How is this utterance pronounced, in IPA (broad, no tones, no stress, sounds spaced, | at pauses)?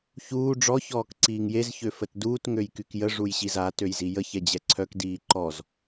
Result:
ç uː ɖ͡ʐ ɔ ç ɔː k ǀ iː ŋ j e z ç ø f ə t d uː t ŋ ø j k y k j ə ʐ u j ɕ i z a t ø j z i j ə ç ɛ d͡ʑ ɛ ǀʰ œ k d iː ǃ ɔ z